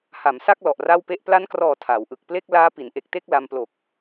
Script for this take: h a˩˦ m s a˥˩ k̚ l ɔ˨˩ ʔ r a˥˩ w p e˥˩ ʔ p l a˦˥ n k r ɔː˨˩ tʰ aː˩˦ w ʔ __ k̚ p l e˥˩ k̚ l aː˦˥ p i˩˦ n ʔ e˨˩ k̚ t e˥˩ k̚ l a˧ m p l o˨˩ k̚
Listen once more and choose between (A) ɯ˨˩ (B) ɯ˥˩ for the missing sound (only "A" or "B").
A